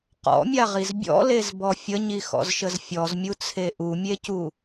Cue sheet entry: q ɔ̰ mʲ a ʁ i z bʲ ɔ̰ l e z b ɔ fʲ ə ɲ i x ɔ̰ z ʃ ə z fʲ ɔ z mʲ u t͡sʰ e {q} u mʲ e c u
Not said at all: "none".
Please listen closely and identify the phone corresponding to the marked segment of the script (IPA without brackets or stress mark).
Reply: ʔ